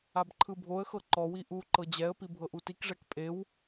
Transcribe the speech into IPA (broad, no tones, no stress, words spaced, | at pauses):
abǃʰɯbʱoə̯xɤ ǃɔwi ʔu ǃɤd͡ʑɛə̯pi bʱɤʔutikʐɛk pʼew